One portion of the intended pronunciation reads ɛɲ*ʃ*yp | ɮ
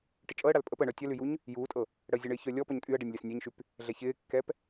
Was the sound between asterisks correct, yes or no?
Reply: yes